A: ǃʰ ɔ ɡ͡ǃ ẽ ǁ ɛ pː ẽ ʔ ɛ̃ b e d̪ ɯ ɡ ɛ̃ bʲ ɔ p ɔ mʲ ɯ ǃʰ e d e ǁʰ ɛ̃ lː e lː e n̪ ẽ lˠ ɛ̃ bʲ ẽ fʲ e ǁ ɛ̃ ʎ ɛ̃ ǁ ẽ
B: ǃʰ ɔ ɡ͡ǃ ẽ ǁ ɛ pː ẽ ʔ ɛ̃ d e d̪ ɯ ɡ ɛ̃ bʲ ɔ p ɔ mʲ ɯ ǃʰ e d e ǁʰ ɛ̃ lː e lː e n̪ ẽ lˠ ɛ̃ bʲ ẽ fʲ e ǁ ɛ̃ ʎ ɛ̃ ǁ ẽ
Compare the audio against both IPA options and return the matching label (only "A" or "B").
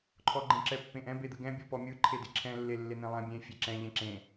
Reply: A